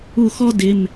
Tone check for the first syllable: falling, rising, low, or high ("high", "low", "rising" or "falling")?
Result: falling